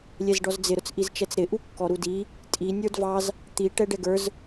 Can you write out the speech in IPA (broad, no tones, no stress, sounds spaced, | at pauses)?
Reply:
lʲ ɛ z ɖ ɔ z d͡z ɪ ɾ ʊ t͡s ʔ i z t͡ʃ ɛ t͡s ɾ ɪ ʔ u kː ɔ ɾ u d i | tʼ i nʲ ə˞ d v ɑ z | t̪ i ʈ ɛ ɖ ɛ ɡ ə˞ z